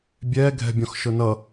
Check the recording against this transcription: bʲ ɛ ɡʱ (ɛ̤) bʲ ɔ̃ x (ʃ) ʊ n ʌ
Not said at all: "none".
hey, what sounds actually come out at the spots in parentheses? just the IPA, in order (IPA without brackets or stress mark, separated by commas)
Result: ɛ̤, ʃ